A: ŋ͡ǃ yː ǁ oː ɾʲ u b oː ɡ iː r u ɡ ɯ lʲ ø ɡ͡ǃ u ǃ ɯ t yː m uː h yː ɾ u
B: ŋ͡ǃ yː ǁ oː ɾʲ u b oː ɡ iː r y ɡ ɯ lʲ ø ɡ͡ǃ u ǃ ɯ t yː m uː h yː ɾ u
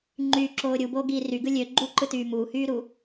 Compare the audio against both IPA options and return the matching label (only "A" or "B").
B